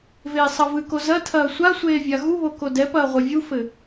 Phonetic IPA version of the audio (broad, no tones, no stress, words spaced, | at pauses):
veːsˤɐvɨko zɐtʰɐː sʷasʷeː vʲaɣuβo kodɛpɐː ʁʷevʲufɘ